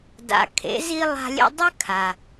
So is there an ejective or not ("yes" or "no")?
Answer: no